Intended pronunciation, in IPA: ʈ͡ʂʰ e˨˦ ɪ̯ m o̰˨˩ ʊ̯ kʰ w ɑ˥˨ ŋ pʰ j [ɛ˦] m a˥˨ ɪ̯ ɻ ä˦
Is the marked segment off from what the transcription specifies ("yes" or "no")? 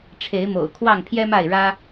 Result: no